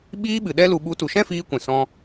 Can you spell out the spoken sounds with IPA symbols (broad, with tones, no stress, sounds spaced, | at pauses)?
ɓ iː˧ ɓ ɨ˨ ɗ ɛ˧ l u˨ ɓ u˨˦ t u˨ ʃ ɛ̃˦ f iː˧ kʷ ɛ̃˨ s ɔ̃˦